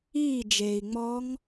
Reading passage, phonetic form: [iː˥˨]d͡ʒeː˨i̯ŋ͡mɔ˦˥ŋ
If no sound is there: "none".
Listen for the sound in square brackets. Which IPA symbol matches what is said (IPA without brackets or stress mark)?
iː˥˨